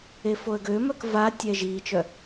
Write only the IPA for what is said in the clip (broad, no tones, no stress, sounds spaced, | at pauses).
e f o ə̯ ɡ ø m œ k v a tʲ ɛ ʒ iː t͡ʃ œ